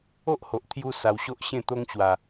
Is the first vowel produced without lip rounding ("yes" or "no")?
no